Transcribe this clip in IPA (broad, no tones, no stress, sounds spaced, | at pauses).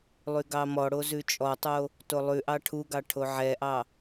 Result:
lˠ y ɡ ɑ m ɔ ɽ o z ʉ t͡ʃʼ ɔ tˤ o | t o lˠ ʉ ʔ ɑ ʈʰ u ɡ ɑ ʈʰ o ʕ ɛ ʔ ɑ